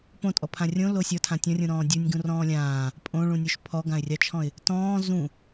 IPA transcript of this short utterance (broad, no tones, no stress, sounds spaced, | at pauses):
p õ tʼ ɔ pʰ ã rʲ õ l o sʲ ɔ tʰ ã tʲ ɔ̃ rʲ ũ ɾ ɔ̃ː dʲ u nʲ ɡ ũ r ɔ̃ː lʲ ãː | pʼ õ ɭ ũ nʲ o ʃ pʰ ɔ ɡ ã ɪ̯ rʲ ɑ t͡ʃʰ ɔ̃ ɪ̯ | t ɔ̃ː z ũ